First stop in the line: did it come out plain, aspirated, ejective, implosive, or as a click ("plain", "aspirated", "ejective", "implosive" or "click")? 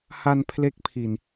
aspirated